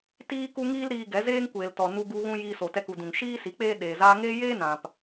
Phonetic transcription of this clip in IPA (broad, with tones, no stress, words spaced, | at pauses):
tiː˦ku˦ŋiː˦l ɾiː˧ɡɛ˨˦zeː˦ŋ kʷeː˨ltɔ˨ nu˧ɡu˧ɣũ˧ jiː˦so˧ tɛ˧ku˨dũ˨ŋ ʃiː˦si˨˦ k͡peː˦ ɗeː˨ zaː˧ŋeː˦jeː˦ nã˨p